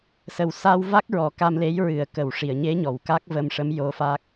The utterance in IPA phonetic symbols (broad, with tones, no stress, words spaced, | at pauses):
sə˨˩w sa˧wva˦˥k̚ ɹɔ˨˩˦ka˧mle˧˥j ɹɨ˨˩ə̯kə˨˩˨wʂi˨˩˨ə̯ɲe˧˥ ɲɔ˨˩wka˦˥k̚və˧mʂə˧˥m jo˧˥fa˦˥k̚